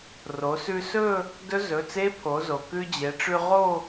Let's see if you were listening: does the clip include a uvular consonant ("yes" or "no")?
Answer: yes